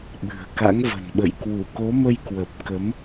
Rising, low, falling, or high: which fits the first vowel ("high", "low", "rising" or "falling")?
low